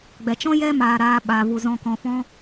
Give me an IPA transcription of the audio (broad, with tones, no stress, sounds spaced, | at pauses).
ɡ͡b ɛ˨ t͡ʃ ɔ̃˦ j ɛ˦ m aː˧ ɾ aː˧ ɓ a˨ v u˨ z ɔ̃˧ k ɔ̃˧ f ɔ̃˦